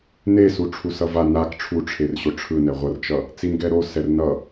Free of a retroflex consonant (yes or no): no